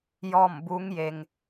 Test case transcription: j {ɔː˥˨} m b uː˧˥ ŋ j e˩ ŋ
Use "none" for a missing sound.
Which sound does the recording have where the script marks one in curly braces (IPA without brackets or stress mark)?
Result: ɔː˥˨